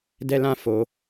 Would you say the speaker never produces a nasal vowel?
no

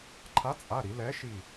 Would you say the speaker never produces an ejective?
no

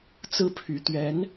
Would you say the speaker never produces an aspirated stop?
no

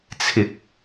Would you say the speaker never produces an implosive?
yes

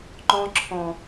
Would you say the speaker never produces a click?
no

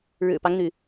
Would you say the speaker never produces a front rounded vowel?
no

